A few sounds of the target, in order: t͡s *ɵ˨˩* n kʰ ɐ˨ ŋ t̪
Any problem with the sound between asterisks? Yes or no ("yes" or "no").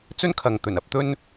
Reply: yes